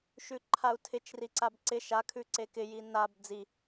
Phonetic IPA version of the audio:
ʃʉǃʰau̯tʰɪt͡ʃ riǀabǀɪ ʃa kʰʉǀekɪ jinab d͡zi

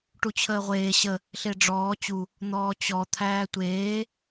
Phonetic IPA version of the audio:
ʈut͡ɕʰəːʁʷeː ɕə | ɬeɖ͡ʐɔː t͡ɕu | n̪ɔːt͡ɕɔ t̪ʰæːtʷeː

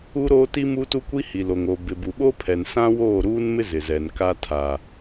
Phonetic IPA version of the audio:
u˦ɾoː˦ti˦ mu˦tu˦kʷi˦ hi˨lo˨ŋ o˨ bɪ˨bu˨ɓo˦pʰɛ˨n sã˦woː˦˨ɾuː˦nmɪ˦ zɪ˨zɛ˨nka˦ tʰa˨

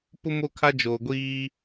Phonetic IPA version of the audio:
pʊ˦ mo˦kʰa˦ d͡ʒoː˨ɡʷiː˦

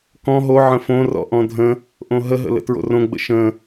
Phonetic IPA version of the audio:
kɔ̃ ɦo ʕə̃fõrɔ̰ ʔɔ̃dʱə̃ | ʔõɦəɦə̰ lə̰tɹo̰rõ ɡ͡bə̰ʃə̃

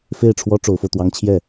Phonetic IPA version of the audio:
fe˥˩ɪ̯ʈ͡ʂʰwɔ˥ ʈ͡ʂo˧˥ʊ̯fo˧ʊ̯t̪wɑ˥ŋ t͡ɕʰjɛ˥˩

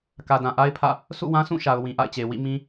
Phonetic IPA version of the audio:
kä˨dã˨ʔa˦ɪ̯pʰä̰˦˨ | sṵ˦˨wã˦sũ˦˨ʃa˨ʊ̯ wĩ˨ʔa̰˦˨ɪ̯t͡ɕe˨ wḭ˦˨mĩ˦

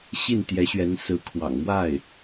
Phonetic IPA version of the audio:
ɕi˥˩nt̪jɛ˧˥ɕɥɛ˧˥nsɹ̩˧˥ kʰwɑ̰˨˩ŋmwa˥˩ɪ̯

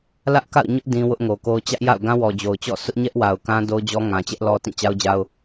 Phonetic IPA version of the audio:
lä˦ʔka̰˦˨ʊ̯ɲʊ˦ʔ dĩ˦wʊ˦ʔŋo˨ko˦ʊ̯ t͡ɕä˦ʔja̰˦˨ʊ̯ ɡã˦wɔ˨d͡ʑo˨ʊ̯t͡ɕɔ̰˦˨ sʊ˦ʔɲɛ˦ʔwa˨ʊ̯ kã˦ do˦ʊ̯d͡ʑɔ˦ ŋã˨t͡ɕɛ˦ʔlɔ˦tĩ˦˨ t͡ɕa˦ʊ̯d͡ʑa˦ʊ̯

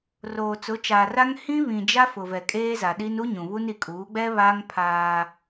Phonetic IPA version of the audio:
roː˨ t͡sʊ˨˦t͡ʃaː˨ra˦ŋ hĩ˦ βĩ˨ d͡ʒa˦fʊ˨vɛ˨ kʼeː˦ za˨ɗi˦n u˦ ɲũ˨βu˦n i˨kʼuː˨˦ɡ͡bɛ˦βaː˦ŋ pʰaː˦

